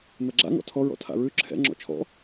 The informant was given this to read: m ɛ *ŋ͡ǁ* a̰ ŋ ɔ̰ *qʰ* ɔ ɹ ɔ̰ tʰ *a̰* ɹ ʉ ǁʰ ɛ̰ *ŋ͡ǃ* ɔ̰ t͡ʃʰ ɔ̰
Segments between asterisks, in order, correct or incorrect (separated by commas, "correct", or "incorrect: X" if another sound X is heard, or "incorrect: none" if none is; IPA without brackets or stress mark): incorrect: ɡ͡ǁ, incorrect: tʰ, correct, incorrect: ŋ͡ǁ